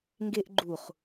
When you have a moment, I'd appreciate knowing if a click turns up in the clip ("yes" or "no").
yes